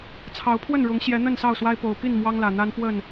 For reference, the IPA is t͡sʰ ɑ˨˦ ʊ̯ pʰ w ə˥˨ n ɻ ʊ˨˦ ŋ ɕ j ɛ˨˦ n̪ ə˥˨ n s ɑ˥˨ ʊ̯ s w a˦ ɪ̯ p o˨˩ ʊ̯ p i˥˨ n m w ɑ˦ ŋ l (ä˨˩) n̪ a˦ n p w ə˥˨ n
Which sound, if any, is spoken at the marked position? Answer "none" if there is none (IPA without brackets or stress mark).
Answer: ä˨˩